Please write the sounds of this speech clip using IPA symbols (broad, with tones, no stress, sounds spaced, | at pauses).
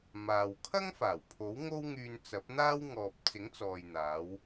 m aː˨ w kʰ ɐ˥ ŋ f aː˨˩ w pʰ o˨˥ w ŋ o˥ w ŋ yː˧ n t͡s ɐ˨˥ p̚ n̪ aː˥ w ŋ ɔː˨ p̚ t͡s ɪ˨˥ ŋ t͡s ɔː˨ j n̪ aː˨˧ w